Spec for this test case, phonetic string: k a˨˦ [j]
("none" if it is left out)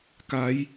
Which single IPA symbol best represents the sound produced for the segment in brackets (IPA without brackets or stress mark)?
j